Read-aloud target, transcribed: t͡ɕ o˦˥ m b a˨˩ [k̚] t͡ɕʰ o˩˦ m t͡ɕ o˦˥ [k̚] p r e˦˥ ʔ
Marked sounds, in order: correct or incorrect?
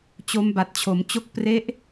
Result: incorrect, correct

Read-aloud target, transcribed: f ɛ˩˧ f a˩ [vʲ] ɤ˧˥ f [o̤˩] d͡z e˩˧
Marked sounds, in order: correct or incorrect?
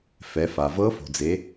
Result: incorrect, correct

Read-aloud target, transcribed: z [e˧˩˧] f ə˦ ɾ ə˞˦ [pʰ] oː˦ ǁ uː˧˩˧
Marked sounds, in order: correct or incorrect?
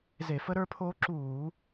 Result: correct, correct

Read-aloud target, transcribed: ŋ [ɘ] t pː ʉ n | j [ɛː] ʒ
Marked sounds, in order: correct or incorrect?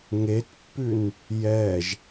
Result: incorrect, correct

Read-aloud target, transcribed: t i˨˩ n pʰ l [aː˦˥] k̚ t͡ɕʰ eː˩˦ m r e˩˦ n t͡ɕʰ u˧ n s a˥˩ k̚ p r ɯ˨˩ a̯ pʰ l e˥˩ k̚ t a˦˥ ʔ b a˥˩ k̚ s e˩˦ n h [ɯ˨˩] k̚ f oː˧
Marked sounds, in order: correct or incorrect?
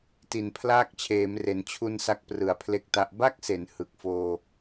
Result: correct, correct

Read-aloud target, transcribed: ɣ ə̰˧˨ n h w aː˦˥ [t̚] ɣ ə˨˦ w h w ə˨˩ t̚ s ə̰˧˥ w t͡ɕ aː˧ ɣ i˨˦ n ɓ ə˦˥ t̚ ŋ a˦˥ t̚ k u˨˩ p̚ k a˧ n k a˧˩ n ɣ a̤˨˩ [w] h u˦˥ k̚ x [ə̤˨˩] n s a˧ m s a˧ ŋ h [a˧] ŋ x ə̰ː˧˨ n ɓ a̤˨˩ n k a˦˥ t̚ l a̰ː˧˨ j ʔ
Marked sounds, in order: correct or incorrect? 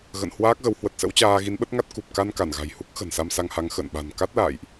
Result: incorrect, incorrect, correct, incorrect

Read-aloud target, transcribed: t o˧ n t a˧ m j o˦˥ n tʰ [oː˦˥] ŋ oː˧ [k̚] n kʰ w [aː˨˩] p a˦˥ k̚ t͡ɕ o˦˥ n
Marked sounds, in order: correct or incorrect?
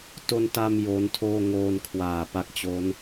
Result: incorrect, incorrect, correct

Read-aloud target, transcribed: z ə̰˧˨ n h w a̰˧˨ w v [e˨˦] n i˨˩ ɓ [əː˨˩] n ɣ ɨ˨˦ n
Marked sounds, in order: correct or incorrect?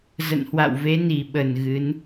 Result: correct, incorrect

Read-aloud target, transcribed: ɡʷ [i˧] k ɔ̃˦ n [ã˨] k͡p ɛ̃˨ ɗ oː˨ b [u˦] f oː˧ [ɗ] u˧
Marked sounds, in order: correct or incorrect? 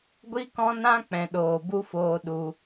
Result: incorrect, incorrect, correct, correct

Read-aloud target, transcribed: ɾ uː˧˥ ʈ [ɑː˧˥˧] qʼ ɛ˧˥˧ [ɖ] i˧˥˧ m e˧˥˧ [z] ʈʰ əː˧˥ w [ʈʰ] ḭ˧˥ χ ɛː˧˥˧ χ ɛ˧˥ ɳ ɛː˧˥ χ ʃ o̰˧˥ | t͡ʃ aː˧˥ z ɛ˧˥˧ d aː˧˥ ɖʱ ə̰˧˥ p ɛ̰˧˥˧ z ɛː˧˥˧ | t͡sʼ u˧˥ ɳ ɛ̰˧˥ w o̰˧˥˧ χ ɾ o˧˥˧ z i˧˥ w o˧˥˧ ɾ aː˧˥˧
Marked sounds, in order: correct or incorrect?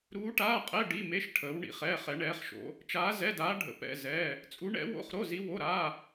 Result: incorrect, correct, incorrect, incorrect

